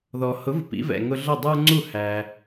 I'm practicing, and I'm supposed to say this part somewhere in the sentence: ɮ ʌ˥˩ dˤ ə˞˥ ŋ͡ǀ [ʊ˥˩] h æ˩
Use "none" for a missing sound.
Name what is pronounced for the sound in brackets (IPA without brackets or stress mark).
u˥˩